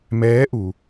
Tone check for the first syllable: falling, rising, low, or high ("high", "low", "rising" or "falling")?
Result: rising